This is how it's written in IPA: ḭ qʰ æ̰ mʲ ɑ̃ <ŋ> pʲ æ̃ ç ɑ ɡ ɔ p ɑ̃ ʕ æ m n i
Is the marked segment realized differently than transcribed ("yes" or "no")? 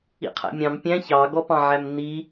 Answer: yes